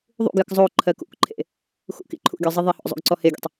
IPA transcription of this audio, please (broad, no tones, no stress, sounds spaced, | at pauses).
ðˤ ṵ ɡ j ə k zˤ o ǃʰ ɜ k ṵ k ǃʰ ḛ | x ṵ k ḭ ǃʰ ṵ ɡʲ ɔ zˤ i ðˤ e h ɔ̰ zˤ ṵ ɡ ǀ ɔ h e ɡʲ ɔ̰ tˤ